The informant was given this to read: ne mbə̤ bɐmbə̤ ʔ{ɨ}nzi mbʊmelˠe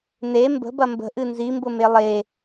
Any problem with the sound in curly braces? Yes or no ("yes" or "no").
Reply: no